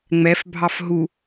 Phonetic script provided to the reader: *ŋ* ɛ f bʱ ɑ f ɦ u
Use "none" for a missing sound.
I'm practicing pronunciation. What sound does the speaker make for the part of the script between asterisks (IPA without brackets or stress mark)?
ŋ͡m